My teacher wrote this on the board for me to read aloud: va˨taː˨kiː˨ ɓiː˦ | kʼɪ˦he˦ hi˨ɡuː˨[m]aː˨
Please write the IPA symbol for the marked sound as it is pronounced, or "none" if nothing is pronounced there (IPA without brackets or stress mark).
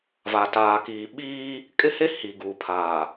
pʰ